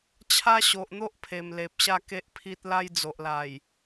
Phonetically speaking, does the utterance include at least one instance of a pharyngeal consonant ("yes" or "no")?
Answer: no